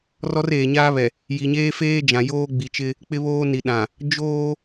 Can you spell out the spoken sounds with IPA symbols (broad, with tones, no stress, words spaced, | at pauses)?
rɔ˦reː˨ɲaː˦βɛ˨ | ji˨ɲeː˦feː˦d͡ʒã˨ joː˦ɡ͡bi˨t͡ʃɪ˦ | k͡pɪ˦βoː˦ni˨ɗã˨ | d͡ʒoː˦